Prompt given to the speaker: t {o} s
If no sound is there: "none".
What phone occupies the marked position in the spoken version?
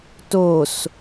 o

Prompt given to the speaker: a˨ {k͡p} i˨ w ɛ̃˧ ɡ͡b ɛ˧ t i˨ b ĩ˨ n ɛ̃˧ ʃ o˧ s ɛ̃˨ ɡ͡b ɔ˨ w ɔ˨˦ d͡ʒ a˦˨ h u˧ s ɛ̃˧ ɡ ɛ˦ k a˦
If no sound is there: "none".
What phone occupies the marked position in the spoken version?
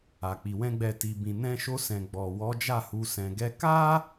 k͡p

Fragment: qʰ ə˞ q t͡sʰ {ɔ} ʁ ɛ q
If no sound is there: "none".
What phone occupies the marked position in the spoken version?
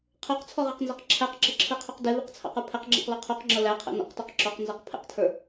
ɔ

